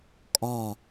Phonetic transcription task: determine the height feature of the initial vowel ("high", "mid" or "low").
low